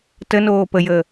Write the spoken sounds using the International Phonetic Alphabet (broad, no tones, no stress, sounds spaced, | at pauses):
t ə n oː p ə j əː